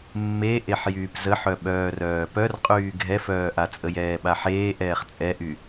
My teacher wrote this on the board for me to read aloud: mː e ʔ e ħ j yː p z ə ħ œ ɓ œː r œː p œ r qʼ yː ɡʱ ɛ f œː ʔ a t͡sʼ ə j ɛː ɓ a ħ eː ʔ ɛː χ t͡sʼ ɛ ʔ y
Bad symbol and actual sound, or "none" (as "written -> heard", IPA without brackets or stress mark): none